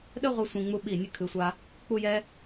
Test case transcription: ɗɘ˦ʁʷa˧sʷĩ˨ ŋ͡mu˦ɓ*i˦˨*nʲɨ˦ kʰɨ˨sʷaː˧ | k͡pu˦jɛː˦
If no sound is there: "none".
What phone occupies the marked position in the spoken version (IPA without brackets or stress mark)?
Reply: i˦˨